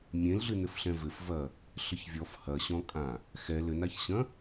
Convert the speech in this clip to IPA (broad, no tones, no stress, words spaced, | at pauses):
mʲẽlɮɨnɘf ɬɛ̃vɘfvɐ | ɬɘçvʲɔf hɐɕɔ̃kʼã | xɛ lɘnaçɕɐ̃